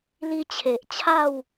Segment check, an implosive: absent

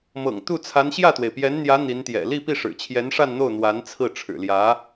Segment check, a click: absent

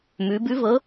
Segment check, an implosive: absent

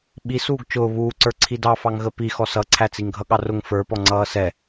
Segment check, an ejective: absent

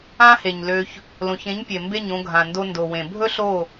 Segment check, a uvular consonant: absent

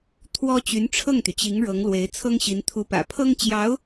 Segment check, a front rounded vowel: present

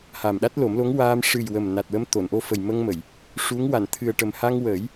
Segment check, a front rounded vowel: absent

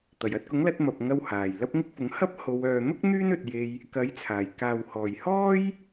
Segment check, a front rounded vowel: present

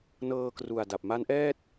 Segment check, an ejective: absent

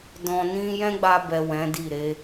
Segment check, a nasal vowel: present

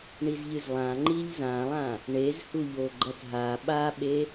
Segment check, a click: present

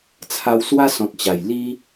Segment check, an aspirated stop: present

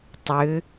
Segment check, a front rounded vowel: present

